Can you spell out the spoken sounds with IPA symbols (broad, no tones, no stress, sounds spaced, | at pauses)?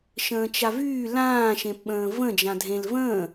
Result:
ʃ ə̃ː t͡ʃ a v yː l ãː ʃ ẽ p ɓ ə̃ː v ə̃ d͡ʒ ã dʱ ẽ l v ə̃ː